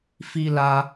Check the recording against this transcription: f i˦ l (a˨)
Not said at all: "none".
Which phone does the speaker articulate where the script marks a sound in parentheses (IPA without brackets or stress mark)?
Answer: a˦